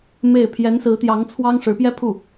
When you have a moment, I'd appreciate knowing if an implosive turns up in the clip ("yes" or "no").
no